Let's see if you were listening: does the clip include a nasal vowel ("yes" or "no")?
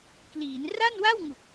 no